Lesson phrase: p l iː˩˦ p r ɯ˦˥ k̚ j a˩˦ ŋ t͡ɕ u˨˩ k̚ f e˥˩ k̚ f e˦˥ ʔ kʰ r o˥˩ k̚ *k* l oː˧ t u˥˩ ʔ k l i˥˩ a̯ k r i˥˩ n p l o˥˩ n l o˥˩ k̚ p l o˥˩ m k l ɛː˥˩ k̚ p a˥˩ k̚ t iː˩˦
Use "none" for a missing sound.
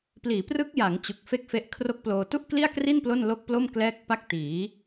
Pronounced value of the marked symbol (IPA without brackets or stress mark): p